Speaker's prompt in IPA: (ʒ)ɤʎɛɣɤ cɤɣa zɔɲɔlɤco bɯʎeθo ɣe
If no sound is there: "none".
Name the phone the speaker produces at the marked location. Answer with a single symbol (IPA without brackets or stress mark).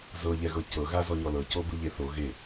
z